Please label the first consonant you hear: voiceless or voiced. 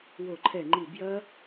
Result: voiced